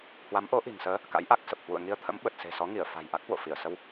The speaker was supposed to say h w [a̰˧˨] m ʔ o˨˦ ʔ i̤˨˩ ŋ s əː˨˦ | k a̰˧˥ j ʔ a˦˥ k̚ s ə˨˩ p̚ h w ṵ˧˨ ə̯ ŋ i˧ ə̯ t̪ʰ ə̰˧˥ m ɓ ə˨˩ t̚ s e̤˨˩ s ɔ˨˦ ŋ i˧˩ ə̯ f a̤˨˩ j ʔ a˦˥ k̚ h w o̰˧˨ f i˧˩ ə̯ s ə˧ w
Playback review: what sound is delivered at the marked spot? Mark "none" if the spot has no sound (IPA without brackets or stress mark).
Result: a˨˦